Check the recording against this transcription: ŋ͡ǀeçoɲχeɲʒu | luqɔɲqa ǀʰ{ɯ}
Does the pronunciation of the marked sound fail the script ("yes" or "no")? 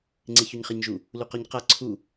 yes